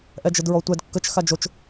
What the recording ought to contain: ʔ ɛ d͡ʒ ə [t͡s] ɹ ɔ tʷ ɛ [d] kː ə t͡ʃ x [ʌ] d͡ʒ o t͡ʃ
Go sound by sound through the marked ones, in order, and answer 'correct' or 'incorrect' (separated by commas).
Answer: incorrect, correct, incorrect